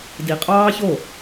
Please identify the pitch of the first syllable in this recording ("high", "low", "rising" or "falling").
low